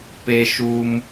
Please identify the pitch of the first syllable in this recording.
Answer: high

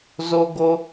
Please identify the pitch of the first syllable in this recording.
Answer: high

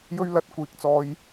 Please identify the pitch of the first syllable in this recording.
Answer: high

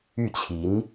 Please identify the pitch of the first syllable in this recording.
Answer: falling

